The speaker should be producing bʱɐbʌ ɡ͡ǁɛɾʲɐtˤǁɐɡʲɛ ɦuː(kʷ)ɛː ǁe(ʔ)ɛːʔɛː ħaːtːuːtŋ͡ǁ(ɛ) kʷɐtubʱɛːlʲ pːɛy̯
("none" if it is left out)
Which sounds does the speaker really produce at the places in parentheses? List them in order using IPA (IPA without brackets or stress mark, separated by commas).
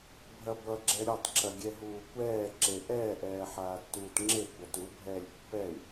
kʷ, ʔ, e